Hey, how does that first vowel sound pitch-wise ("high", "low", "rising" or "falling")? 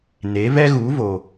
rising